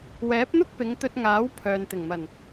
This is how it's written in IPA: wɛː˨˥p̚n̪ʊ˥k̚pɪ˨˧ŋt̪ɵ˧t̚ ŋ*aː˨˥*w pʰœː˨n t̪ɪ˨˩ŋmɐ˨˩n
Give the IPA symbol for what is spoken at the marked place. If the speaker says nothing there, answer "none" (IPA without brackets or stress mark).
aː˨˥